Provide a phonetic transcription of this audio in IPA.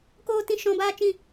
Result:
k oː˦˨ t ĩ˦ ʃ ɔ̃˧ b aː˦ t͡ʃ ĩ˦˨

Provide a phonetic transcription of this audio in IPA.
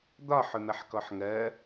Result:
d̪ ɒ ħ ʊ n̪ ʌ ħ k ɔ ħ ŋ ɜ

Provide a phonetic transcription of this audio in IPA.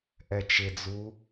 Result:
ʔ ɛ t͡ʃ ɪ d͡z u

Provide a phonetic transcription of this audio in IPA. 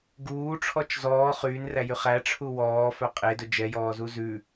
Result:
ɡ uː ʈ͡ʂʰ ɔ t͡ʃ z ɔː χ yː n r æ j y χ æ ʈ͡ʂʰ u w ɔː f œ qʼ e d ɵ d͡ʒ ɛ j ɔː z u z ʉ

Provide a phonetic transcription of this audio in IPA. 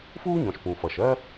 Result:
f uː˥ ɲ ɔ̃˩ ʃ p ũ˩ f ʌ˩ ʃ ɜ˥

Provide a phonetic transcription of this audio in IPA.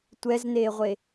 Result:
tʷ ɛ z n eː ʁʷ e

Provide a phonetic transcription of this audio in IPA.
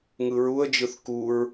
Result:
ŋ ɯ ɹ u ə̯ d͡ʒ ɯ θ k u ɹ

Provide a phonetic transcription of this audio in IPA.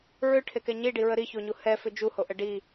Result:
ɹ ʏ ʈʰ e k ɛ ɲ i ɖ i ɹ ə ɾ i ç o ɲ u h ɛ f ʏ d͡ʒ u h o ʔ ə ɖ i

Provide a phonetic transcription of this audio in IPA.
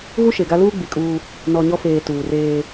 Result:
ɣ u˦ ʃ e˨ ɡ a˦ l uː˦ ɡ͡b i˨ kʼ uː˦ | n ɔ˨ ɲ ɔ˦ f eː˨ t uː˨ r eː˦

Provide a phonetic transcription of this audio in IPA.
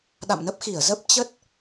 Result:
ɗ a̰˧˨ m n ə˦˥ p̚ x i˧˩ ə̯ z ə˦˥ p̚ t͡ɕ ə˦˥ t̚

